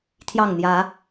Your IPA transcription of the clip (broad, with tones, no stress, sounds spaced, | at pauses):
t̪ʰ j ɑ˥˨ ŋ n̪ j ä˨˦